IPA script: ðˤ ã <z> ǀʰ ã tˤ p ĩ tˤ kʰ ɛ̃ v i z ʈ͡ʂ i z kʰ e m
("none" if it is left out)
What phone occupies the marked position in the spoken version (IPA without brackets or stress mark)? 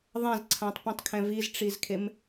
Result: z